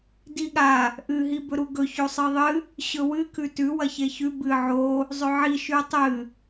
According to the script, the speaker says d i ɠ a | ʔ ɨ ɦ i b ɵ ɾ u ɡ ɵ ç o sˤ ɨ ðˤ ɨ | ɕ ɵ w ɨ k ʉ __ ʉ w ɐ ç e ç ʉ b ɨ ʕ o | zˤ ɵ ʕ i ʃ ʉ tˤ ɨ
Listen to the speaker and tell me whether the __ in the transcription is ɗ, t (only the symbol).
t